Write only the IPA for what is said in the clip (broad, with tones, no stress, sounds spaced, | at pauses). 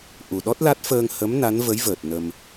ʔ u˨˩ ɗ ɔ˦˥ t̚ l a˦˥ t̚ f əː˧ ŋ h ə˧˥ m n a˧˥ n v ə˧˥ j v əː˨˩ t̚ n ə˧ m